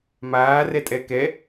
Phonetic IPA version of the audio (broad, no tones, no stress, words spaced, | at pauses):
maːrɛtʼɛ kɛ